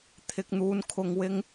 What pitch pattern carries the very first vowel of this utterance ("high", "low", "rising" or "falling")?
low